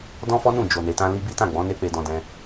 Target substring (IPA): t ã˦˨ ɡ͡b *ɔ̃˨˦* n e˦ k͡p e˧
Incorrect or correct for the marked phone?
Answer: correct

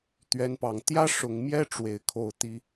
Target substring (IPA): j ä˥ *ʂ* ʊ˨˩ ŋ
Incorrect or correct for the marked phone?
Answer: correct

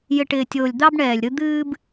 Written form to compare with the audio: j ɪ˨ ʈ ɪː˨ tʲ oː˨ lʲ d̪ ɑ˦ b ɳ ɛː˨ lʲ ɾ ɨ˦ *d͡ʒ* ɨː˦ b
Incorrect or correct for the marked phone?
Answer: incorrect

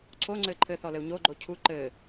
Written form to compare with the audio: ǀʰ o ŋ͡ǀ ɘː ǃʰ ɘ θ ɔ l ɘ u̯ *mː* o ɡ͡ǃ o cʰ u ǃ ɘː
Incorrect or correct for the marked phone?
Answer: incorrect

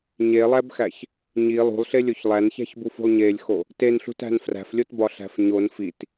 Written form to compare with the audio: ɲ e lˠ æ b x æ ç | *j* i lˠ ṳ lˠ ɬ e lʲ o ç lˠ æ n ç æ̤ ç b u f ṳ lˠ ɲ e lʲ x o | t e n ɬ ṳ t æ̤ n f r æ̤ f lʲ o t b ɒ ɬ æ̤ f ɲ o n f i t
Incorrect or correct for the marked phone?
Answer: incorrect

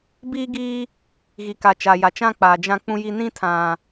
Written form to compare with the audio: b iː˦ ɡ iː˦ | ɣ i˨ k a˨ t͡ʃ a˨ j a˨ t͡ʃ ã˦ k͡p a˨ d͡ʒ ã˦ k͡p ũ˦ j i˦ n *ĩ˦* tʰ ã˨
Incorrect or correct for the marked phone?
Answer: correct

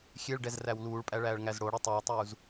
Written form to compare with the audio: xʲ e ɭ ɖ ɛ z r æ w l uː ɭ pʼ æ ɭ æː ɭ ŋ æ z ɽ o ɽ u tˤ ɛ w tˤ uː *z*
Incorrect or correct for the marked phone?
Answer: correct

